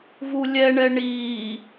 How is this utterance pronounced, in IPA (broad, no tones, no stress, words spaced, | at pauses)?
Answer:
vulʲɛɳɛ ɳi